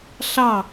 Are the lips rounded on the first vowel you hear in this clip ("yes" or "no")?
no